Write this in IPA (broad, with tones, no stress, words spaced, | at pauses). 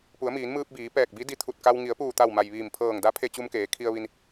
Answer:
pu˩˧ə̯miː˩˧nmɯː˧p̚biː˩˧ pɛː˧˩k̚bi˧˥di˧t̪ʰu˧˩t̚ ka˧w ŋi˩˧ə̯puː˧˩t̪a˧˩wma˩j ʋiː˧˩mpʰɤː˧˩ŋda˧˥ pʰe˧t͡ɕu˧mkeː˩˧ kʰi˧ə̯ ʋi˧n